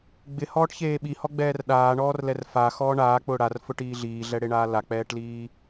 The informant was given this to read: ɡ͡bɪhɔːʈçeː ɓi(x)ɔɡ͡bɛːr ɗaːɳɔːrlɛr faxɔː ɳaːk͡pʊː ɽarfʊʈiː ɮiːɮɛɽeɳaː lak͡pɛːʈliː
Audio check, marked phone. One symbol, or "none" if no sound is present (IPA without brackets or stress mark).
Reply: h